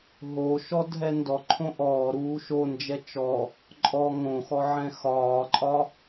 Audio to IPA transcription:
ɦoʃɔ dʱɛndɔ ǃʰõʔɔː ɾuːʃond͡ʒɛ t͡ʃɔ | ǃʼɔ ŋõxɔʕɛ̃ xɒːǃʼɒ

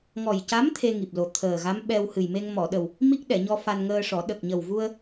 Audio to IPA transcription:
ŋɔ˨˩jca˧˥m t̪ʰe˧ ŋi˨˩p̚lo˨˩ t̪ʰəː˨˩ɣa˧˥m ɓɛ˧w hɨ˨˩jme˧ŋ mɔ˨˩˨ɗə˨˩w | mi˦˥k̚ɗɛ˨˩˨ɲɔ˧ fa˧nŋəː˧ʂɔ˨˩˦ ɗə˨˩k̚ɲə˨˩wvu˧ə̯

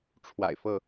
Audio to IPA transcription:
ʈ͡ʂʰwa̰˨˩ɪ̯fɤ˥˩

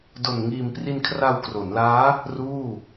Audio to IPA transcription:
do˨˩nŋiː˨˩mpri˧n kʰra˧wkro˩˦nlaː˦˥ | ruː˥˩

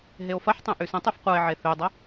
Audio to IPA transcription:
ɦeo̯fɐħtˤẽ ʔysə̃tˤyf qʷɐe̯ʕe θødˤə

